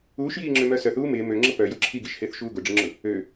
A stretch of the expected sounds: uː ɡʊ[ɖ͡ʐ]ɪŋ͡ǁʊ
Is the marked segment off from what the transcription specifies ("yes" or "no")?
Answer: no